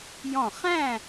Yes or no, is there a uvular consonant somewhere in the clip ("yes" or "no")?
yes